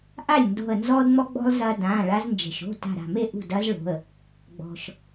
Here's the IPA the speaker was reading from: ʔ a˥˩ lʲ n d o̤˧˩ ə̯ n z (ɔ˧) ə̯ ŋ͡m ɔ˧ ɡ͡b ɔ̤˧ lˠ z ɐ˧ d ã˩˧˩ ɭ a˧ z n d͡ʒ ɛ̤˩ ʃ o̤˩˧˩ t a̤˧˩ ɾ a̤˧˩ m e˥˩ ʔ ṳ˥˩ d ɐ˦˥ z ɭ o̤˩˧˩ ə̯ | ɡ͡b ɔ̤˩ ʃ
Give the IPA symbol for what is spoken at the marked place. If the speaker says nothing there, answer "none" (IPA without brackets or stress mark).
ɔ˧